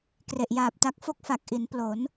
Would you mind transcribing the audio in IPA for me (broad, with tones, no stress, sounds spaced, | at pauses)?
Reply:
k r e˨˩ ʔ j aː˨˩ p̚ t a˦˥ k̚ f o˥˩ k̚ f a˨˩ k̚ ʔ i˩˦ n p l o˩˦ n